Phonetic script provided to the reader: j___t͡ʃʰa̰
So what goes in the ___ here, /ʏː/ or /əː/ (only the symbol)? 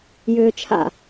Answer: ʏː